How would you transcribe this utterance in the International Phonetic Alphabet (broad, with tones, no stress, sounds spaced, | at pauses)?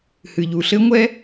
h ɨ˨ ʎ u˨ ɬ ɘ˦ ŋʷ ɛ˦